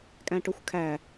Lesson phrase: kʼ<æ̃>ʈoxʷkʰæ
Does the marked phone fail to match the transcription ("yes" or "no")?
no